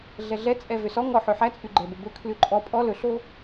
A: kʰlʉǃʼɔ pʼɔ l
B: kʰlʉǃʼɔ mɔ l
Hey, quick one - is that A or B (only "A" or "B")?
A